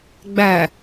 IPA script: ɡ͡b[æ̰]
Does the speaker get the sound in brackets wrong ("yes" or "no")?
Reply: yes